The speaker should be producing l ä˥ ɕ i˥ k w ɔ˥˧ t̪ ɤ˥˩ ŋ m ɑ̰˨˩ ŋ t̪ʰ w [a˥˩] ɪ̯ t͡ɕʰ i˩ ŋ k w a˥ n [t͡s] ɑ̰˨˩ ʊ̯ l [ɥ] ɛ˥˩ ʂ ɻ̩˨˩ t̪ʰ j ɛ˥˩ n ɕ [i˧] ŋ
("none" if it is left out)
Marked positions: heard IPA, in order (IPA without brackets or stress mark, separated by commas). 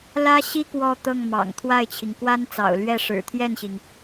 a˥˩, t͡s, ɥ, i˩